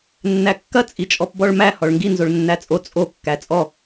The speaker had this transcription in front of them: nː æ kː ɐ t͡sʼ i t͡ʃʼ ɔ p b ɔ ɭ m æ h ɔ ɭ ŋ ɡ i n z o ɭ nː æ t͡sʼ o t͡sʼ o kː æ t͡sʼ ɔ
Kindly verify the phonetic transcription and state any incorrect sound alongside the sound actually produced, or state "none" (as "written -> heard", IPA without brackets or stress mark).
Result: none